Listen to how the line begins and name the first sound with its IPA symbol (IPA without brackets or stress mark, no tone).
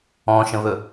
ɔ̃